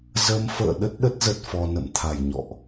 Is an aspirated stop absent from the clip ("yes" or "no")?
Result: no